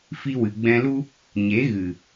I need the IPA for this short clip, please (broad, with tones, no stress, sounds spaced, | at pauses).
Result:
f i˧ w ɨ˨ ɡ͡b ɛ̃˧ l u˦ | ɲ e˨˦ ɣ ɨ˨